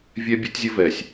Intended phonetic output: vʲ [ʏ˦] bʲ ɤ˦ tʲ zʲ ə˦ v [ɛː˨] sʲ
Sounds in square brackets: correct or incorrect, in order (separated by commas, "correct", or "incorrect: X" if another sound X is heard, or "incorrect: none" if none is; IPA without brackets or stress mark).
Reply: incorrect: ɛ˦, correct